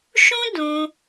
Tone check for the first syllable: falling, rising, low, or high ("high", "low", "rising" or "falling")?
high